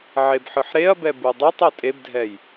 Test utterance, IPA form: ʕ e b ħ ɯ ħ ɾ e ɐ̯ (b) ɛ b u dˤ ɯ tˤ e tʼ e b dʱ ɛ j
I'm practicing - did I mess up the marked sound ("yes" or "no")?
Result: no